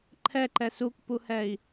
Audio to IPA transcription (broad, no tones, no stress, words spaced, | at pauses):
ǃʰɛǃɛ sukpuhɛi̯